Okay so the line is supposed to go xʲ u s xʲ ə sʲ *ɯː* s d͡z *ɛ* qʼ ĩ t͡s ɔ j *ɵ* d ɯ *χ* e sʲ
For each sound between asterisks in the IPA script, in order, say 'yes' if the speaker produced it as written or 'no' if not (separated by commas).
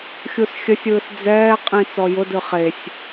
yes, no, no, yes